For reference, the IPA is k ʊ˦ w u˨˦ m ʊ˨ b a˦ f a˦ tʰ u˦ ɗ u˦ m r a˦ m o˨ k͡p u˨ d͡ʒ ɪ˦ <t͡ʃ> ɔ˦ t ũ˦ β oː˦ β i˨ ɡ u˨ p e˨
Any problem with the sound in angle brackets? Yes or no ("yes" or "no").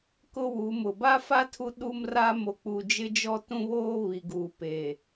yes